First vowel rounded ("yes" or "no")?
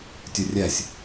yes